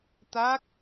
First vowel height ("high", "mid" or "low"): low